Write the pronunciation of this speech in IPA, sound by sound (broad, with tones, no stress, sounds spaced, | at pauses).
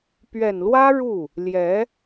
p ɥ ɛ˨˩ n l w ä˥ ɻ u˥˩ | l j ɛ˧˥